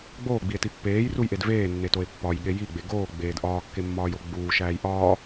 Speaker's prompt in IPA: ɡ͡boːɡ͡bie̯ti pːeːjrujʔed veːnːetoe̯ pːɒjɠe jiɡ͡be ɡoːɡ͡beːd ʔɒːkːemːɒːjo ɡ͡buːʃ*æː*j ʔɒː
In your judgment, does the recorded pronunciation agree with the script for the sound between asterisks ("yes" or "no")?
yes